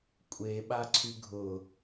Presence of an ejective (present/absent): present